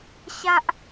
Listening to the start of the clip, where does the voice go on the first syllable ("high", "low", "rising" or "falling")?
high